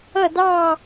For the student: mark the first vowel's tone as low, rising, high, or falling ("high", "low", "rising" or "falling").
falling